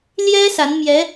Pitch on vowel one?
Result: high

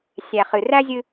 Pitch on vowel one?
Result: low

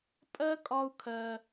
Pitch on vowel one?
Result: high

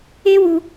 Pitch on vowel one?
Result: high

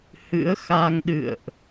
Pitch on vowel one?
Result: rising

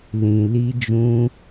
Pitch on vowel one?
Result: low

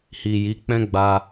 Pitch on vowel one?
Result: low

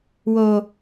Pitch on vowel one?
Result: low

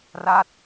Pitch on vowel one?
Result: falling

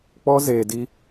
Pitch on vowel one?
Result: high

